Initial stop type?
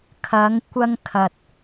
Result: aspirated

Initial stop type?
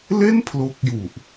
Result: aspirated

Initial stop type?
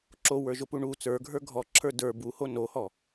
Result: click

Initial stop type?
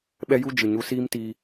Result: implosive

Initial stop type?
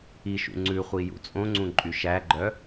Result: click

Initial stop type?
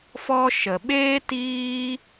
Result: implosive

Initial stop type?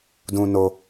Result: plain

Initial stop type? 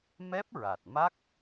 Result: plain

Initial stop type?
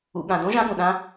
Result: implosive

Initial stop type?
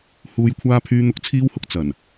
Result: aspirated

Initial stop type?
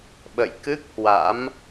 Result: implosive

